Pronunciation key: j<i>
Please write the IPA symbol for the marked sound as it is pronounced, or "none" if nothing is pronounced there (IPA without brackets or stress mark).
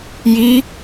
i